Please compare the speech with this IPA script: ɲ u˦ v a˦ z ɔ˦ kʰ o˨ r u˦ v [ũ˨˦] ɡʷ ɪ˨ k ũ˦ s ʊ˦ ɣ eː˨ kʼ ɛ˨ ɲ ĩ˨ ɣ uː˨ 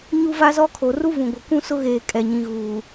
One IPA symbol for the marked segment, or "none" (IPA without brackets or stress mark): ũ˨